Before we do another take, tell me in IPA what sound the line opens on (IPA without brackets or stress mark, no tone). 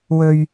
w